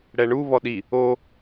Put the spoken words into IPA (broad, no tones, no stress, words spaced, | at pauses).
ɽɛɳu βɔɗi | o